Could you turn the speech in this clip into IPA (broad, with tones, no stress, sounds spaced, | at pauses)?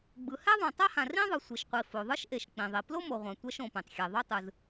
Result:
ɡ͡b ɯ˩ h ɛ˥ ðˤ õ˩ tˤ a˥ h ã˩ r ĩ˥ ðˤ ɯ˩ sʷ i˩ ʃ qʷ i˩ f o˩ ðˤ ɯ˥ ʃ ʔ e˩ ʃ k͡p ĩ˩ ðˤ i˩ p l o˥ m o˩ ʁʷ ã˩ tʷ ɛ˥ ʃ õ˩ p ẽ˩ tˤ xʲ e˩ ðˤ o˥ tˤ ɯ˩ z